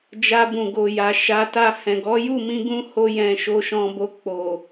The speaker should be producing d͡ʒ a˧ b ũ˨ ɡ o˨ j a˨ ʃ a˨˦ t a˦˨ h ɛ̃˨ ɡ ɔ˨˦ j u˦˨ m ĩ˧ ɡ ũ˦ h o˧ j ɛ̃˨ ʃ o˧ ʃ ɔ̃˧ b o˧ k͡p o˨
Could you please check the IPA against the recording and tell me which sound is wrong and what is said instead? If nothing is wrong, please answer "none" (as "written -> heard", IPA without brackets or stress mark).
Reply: none